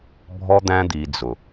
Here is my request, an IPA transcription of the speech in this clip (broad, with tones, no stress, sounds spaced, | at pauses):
bʱ ɔ˦ d̪ æ̃˦ d̪ i˧ d͡z ʊ˨